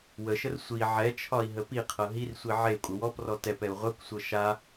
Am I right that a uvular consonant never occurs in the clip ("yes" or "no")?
no